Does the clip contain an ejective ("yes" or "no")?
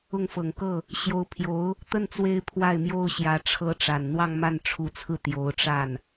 no